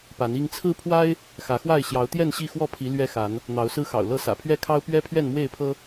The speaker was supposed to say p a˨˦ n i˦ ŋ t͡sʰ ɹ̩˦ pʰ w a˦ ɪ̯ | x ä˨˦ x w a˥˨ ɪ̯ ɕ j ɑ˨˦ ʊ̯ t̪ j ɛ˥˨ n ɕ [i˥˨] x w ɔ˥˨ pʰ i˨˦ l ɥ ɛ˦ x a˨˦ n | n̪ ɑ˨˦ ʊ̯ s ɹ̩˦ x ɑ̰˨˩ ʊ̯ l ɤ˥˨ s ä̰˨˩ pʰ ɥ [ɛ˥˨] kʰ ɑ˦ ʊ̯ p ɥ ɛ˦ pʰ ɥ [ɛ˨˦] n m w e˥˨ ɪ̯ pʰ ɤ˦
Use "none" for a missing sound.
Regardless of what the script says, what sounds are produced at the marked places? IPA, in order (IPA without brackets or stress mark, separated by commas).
i˥˨, ɛ˥˨, ɛ˥˨